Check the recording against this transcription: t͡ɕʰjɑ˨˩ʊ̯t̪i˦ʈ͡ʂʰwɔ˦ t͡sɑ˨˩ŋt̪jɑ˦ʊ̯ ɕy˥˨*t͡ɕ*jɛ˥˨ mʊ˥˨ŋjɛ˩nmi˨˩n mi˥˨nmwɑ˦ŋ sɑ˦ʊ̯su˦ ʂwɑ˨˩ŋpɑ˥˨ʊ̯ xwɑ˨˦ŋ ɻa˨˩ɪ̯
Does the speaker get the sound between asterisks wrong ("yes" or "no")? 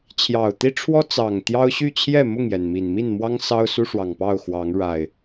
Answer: yes